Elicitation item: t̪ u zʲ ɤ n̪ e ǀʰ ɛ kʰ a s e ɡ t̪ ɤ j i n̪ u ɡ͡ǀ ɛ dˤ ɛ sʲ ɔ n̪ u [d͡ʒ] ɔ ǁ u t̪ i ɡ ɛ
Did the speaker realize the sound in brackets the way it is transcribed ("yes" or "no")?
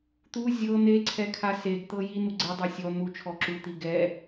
no